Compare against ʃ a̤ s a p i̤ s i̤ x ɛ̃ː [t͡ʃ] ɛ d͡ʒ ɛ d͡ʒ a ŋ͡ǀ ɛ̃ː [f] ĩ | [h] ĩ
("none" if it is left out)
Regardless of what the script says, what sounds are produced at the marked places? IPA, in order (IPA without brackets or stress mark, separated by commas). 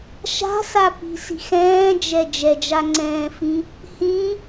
d͡ʒ, f, h